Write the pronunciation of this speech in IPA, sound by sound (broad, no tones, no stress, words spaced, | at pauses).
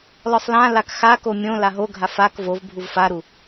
lɔsˤlãlak xako mʲõ laɦoɡʱaf ak vov bʱuvfaɾu